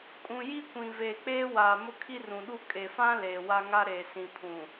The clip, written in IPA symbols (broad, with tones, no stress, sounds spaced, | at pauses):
kʼ ũ˨ j i˦ kʷ ĩ˨ v eː˨ k͡p eː˦ w aː˨ m ʊ˦ kʰ i˦ r ũ˨ ɗ u˦ kʼ e˨ f ã˦ l eː˨ w a˦ ŋ a˦ ɾ eː˨ s ĩ˨ pʰ ũ˨